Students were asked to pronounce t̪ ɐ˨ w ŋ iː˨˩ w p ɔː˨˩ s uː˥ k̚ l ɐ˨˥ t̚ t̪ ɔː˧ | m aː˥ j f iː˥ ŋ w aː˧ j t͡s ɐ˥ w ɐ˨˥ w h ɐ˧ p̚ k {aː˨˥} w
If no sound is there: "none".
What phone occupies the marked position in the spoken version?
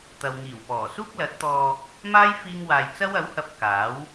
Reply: aː˨˥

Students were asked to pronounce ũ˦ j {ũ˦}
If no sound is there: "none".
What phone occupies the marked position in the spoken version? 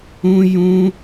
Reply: ũ˦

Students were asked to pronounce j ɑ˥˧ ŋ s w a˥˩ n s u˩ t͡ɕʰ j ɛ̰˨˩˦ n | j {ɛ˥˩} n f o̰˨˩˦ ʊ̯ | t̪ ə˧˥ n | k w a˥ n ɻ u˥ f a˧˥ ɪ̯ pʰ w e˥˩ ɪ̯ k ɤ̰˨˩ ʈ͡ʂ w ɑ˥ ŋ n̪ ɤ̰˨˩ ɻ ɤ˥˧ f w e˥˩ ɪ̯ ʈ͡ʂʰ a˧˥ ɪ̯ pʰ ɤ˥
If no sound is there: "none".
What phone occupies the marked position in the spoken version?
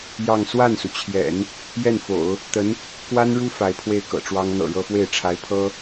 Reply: ɛ˥˩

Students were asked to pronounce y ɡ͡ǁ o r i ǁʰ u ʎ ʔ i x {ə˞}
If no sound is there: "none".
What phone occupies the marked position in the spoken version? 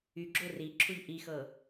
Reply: ɤ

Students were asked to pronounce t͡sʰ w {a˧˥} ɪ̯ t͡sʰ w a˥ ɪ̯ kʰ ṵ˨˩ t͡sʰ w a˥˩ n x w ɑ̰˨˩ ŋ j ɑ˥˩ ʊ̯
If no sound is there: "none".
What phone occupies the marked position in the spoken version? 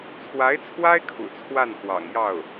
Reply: a˧˥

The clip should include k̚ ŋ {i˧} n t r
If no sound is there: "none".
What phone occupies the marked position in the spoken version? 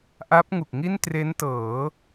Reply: i˥˩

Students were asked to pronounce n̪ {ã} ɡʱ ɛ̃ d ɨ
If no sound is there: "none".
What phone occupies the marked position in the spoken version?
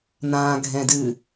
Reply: ã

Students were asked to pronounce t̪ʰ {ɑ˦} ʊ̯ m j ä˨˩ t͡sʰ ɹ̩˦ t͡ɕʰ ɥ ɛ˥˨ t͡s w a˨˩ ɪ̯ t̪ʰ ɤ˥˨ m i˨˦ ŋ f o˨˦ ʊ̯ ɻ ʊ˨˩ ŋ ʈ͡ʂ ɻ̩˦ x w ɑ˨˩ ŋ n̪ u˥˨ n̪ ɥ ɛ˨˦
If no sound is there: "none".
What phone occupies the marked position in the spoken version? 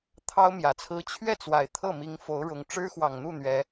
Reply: ɑ˦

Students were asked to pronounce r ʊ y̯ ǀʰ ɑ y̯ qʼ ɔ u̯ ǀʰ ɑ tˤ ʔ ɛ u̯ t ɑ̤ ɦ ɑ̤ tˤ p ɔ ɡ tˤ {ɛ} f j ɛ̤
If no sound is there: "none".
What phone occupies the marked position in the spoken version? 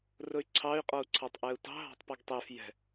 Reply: ɛ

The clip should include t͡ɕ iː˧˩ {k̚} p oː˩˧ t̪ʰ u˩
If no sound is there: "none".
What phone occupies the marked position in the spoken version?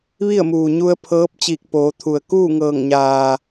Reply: k̚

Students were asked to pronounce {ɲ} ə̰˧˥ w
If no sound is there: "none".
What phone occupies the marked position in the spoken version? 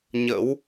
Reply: ɲ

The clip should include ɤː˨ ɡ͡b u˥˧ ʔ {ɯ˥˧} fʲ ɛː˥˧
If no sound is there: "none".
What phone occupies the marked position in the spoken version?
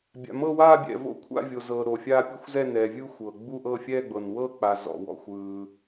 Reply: ɤ˥˧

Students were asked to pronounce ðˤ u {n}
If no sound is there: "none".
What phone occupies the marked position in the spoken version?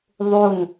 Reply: n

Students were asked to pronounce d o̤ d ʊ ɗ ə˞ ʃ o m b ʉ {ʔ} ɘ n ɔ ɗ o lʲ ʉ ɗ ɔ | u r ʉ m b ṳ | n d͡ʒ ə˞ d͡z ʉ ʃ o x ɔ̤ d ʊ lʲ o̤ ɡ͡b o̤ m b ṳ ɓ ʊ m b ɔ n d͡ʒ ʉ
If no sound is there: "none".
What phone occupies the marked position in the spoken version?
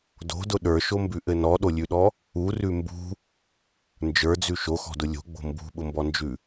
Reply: ʔ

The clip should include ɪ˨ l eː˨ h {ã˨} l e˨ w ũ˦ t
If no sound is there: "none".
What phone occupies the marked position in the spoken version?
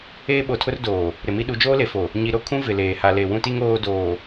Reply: a˨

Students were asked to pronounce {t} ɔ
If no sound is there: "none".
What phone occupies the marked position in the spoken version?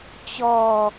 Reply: t͡ɕ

